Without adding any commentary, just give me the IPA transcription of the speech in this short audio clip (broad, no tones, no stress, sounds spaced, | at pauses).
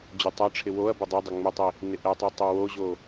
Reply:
d͡ʑ ʊ tˤ a ʈ͡ʂʰ ɪ w o ɐ̯ b ʊ dˤ ɛ dˤ ɪ ŋ͡m ɪ tˤ i | n ɪ ʔ ɛ tˤ i tˤ o w o ʑ o